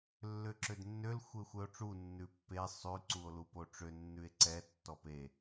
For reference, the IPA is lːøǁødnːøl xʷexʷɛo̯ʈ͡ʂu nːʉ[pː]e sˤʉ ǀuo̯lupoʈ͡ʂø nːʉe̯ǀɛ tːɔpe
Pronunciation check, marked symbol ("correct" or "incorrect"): correct